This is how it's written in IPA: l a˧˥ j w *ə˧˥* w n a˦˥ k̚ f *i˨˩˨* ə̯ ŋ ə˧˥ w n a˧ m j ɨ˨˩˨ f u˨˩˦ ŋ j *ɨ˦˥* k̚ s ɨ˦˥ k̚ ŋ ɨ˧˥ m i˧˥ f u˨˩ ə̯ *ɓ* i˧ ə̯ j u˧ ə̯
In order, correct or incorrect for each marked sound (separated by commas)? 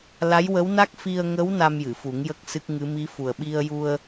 correct, incorrect, incorrect, correct